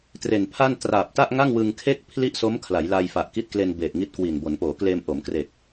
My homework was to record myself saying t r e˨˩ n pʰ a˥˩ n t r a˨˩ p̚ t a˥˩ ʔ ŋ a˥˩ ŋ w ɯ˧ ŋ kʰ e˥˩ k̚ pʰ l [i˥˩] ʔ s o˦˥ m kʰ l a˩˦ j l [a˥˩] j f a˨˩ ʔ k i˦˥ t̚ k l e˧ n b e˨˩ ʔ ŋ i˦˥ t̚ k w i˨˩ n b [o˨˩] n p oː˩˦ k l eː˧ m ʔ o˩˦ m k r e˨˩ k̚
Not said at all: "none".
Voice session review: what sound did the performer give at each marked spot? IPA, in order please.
i˥˩, a˧, o˩˦

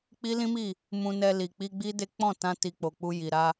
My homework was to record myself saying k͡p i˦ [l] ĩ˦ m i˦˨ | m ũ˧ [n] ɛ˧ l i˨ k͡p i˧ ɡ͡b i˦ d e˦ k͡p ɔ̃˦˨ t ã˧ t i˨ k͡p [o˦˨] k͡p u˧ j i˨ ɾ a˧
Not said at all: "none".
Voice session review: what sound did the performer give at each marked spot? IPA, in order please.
l, n, o˨

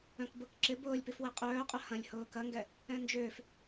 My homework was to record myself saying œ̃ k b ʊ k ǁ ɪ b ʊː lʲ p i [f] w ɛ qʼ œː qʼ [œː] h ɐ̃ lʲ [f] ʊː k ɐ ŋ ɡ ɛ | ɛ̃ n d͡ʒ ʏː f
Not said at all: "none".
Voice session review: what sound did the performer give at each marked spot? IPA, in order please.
f, œ, h

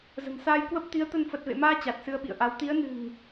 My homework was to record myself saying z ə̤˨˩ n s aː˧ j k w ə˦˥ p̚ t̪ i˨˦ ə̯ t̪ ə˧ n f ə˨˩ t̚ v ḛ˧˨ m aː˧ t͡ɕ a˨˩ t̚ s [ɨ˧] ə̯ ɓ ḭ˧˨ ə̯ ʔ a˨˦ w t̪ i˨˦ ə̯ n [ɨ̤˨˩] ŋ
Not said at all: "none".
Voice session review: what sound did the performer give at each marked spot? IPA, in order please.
ɨ˧, ɨ̤˨˩

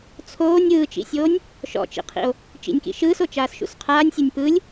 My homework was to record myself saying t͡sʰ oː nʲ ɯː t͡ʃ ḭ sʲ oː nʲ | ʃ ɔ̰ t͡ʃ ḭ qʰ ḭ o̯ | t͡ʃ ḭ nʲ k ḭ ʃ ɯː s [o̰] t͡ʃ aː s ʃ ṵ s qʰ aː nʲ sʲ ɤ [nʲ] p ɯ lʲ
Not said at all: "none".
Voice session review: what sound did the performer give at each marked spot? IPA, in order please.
o, nʲ

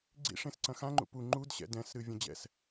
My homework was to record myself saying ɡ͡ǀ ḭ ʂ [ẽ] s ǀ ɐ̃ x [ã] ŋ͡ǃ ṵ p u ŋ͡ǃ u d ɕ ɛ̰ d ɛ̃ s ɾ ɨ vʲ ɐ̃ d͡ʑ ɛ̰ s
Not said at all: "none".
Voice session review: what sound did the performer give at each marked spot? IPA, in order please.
ẽ, ã

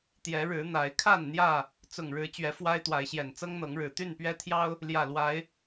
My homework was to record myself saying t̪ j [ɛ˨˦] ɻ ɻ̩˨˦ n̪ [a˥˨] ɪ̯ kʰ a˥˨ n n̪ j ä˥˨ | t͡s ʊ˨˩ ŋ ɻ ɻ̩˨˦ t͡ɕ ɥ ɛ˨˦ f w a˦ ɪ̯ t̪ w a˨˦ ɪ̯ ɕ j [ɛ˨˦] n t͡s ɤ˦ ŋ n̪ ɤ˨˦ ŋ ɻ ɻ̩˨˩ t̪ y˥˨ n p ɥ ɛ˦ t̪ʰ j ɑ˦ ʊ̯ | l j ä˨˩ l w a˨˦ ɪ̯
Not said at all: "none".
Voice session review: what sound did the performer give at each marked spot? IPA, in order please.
ɛ˨˦, a˨˦, ɛ˨˩

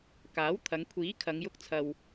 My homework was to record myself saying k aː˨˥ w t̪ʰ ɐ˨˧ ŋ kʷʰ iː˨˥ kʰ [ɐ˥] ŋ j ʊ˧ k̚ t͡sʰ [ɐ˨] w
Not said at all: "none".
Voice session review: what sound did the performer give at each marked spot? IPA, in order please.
ɐ˨˧, ɐ˨

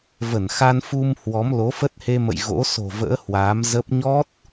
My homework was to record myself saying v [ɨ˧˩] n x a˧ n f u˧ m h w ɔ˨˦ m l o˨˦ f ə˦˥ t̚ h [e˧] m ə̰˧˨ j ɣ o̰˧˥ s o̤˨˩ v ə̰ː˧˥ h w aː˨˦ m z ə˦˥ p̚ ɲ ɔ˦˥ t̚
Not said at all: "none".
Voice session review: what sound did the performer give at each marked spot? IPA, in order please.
ə˧˩, e˧

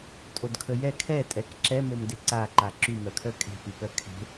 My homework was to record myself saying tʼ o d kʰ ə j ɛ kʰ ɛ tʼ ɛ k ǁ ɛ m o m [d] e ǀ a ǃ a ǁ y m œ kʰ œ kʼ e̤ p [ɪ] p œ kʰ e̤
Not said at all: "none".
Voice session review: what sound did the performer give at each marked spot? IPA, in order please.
d, y

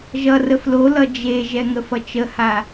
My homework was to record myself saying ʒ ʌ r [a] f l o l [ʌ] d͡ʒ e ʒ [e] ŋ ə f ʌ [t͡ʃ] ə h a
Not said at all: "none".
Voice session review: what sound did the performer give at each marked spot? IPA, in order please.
ə, ʌ, ɛ, t͡ʃ

